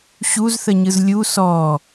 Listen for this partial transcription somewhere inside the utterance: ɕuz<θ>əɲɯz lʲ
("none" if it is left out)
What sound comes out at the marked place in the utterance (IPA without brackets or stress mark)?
θ